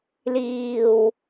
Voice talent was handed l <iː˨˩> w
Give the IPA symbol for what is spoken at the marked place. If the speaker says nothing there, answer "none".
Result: iː˨˩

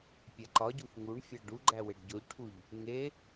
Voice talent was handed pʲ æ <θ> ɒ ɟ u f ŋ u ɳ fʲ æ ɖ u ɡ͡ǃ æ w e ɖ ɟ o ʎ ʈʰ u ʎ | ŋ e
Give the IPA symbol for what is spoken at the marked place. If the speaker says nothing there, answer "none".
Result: ǃ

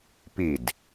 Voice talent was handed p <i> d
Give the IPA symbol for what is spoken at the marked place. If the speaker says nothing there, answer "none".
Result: i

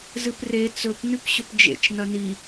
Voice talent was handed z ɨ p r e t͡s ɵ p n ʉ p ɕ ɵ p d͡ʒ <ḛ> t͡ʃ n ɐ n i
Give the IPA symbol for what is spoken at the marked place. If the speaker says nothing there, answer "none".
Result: ḛ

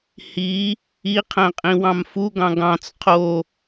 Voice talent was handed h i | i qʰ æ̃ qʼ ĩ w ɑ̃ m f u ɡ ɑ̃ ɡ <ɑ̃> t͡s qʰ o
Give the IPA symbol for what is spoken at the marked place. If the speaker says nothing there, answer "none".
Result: ɑ̃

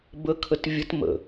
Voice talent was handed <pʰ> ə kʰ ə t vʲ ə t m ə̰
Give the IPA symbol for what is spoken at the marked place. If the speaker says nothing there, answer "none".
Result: b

